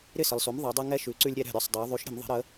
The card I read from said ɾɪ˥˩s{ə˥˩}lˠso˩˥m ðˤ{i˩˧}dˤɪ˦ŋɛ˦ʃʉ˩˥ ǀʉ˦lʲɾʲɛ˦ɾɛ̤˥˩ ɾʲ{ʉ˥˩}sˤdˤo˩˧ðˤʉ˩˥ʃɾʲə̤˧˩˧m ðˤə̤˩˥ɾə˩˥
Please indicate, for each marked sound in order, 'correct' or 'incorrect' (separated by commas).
incorrect, correct, incorrect